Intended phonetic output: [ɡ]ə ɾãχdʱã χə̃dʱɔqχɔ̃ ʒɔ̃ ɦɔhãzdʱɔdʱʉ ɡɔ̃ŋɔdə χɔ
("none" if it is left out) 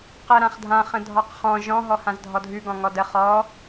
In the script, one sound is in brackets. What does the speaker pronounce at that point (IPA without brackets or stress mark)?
q